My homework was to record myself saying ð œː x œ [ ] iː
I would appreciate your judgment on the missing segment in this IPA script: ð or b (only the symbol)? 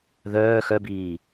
b